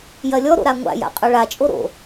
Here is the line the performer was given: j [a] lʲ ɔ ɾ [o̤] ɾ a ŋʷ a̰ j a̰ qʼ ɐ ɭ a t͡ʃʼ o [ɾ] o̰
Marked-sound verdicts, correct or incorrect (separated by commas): incorrect, incorrect, correct